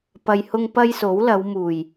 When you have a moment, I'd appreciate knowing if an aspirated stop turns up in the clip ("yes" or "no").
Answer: no